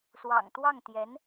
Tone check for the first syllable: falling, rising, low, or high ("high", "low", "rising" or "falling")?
low